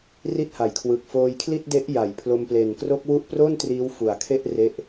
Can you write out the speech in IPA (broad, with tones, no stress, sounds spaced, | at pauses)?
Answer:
r i˥˩ t̚ h a˩˦ j kʰ w ɯ˨˩ k̚ f oː˧ j kʰ l i˥˩ t̚ d e˦˥ ʔ j a˩˦ j pʰ l o˧ m p l e˨˩ n k r o˦˥ k̚ w u˦˥ ʔ p r o˥˩ n t r iː˦˥ w f u˨˩ a̯ kʰ e˥˩ ʔ r e˦˥ ʔ